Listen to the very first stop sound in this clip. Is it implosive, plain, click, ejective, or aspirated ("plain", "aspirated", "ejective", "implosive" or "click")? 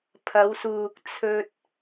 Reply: aspirated